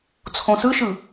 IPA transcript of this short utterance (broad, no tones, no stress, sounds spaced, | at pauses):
t͡sʰ õ s ɯ ʃ ɯ